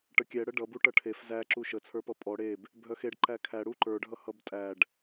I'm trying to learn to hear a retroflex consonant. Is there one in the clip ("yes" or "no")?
yes